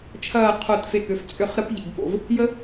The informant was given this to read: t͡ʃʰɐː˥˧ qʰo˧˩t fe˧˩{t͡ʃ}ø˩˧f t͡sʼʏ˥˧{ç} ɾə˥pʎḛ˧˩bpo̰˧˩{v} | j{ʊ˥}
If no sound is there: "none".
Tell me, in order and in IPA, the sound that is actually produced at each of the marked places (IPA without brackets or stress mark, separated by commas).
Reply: k, χ, v, ə˥